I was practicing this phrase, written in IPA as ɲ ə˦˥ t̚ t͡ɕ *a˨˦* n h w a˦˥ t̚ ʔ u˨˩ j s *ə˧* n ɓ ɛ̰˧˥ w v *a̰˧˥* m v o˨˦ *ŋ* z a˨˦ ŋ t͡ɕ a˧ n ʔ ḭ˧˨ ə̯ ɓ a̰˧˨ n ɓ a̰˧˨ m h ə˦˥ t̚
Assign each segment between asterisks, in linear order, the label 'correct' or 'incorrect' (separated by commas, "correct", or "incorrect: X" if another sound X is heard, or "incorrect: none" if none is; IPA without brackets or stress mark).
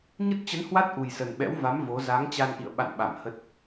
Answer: incorrect: ə˨˦, incorrect: ə˨˩, incorrect: a˨˦, incorrect: none